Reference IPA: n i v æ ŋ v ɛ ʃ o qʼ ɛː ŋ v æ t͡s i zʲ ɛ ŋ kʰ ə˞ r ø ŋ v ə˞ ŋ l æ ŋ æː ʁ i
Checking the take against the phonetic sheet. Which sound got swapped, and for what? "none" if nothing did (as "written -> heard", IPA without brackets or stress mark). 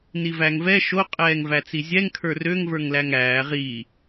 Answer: none